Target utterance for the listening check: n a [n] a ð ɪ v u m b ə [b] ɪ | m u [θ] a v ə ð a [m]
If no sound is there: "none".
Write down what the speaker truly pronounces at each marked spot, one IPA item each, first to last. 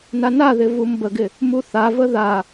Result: n, ɡ, θ, none

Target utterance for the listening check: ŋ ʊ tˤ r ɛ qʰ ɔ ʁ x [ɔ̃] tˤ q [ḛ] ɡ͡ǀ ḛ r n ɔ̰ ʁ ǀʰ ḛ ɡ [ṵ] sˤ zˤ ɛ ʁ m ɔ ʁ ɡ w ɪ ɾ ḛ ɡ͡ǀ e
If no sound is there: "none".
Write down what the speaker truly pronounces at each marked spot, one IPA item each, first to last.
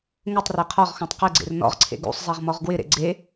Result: ɔ̃, e, ṵ

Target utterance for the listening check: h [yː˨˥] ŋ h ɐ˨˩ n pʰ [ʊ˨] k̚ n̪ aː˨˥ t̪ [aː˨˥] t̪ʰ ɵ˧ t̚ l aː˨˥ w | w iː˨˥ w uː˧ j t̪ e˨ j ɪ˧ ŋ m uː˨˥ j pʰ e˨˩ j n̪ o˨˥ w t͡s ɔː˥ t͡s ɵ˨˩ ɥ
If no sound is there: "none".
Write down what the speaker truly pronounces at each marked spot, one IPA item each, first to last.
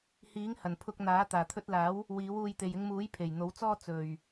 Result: iː˨˥, ʊ˧, aː˨˩

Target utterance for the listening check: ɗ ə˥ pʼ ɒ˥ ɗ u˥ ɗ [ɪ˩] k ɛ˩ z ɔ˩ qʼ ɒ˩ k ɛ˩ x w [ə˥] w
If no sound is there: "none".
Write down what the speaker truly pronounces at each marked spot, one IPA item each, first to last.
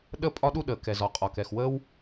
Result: ə˩, ə˥

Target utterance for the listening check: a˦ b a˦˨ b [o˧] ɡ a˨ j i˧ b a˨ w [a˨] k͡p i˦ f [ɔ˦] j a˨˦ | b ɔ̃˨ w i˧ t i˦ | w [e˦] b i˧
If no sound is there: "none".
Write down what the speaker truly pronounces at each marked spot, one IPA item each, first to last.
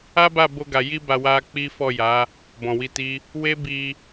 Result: o˧, a˧, ɔ˦˨, e˦

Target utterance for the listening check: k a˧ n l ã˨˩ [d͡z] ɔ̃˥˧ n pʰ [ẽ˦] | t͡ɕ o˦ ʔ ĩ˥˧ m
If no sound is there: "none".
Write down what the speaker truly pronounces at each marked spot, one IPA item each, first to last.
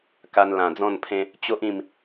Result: d͡z, ẽ˦

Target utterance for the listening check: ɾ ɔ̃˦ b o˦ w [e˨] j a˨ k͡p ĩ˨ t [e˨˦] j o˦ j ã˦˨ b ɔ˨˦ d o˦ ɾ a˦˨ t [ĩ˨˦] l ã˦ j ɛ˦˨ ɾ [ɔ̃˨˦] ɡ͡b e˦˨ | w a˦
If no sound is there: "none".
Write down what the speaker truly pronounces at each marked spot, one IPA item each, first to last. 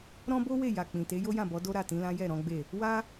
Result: e˦˨, e˨˦, ĩ˨˦, ɔ̃˨˦

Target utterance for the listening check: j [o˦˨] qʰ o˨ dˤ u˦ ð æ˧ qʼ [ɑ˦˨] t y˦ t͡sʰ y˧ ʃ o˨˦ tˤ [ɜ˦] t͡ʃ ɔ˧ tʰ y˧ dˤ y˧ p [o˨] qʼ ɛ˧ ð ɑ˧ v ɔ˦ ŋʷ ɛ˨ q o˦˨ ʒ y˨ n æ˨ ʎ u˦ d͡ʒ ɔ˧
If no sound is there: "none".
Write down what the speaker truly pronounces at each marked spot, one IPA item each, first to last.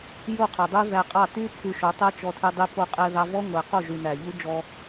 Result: o˦˨, ɑ˦˨, ɜ˦, o˧

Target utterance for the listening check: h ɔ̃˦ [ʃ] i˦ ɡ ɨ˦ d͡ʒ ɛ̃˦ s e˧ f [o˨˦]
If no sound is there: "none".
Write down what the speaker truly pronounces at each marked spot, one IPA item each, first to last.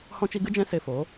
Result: t͡ʃ, o˨˦

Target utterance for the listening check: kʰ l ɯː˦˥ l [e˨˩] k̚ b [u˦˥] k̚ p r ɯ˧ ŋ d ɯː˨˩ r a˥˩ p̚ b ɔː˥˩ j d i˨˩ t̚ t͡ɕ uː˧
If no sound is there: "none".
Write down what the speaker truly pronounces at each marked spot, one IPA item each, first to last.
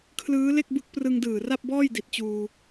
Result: e˥˩, ɯ˦˥

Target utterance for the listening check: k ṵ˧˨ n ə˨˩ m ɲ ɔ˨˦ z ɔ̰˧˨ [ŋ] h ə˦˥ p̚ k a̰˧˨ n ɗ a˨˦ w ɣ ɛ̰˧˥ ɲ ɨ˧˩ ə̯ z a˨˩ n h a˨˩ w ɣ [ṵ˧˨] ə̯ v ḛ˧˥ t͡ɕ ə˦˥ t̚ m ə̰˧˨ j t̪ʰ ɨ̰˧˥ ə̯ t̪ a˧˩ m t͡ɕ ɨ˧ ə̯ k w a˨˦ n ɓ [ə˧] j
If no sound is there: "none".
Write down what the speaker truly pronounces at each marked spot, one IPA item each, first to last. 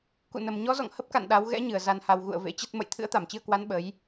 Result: ŋ, ṵ˧˨, ə˨˦

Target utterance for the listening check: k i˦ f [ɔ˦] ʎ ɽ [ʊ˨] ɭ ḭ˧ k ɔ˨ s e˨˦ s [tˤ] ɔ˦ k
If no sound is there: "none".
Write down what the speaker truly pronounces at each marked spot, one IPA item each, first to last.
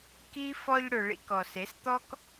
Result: ɔ˧, ʊ˨, t̪

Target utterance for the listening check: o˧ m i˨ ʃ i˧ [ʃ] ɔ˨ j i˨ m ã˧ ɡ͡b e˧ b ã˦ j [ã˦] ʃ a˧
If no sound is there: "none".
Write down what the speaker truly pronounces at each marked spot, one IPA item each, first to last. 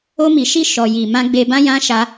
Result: ʃ, ã˦

